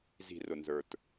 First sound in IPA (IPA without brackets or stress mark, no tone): z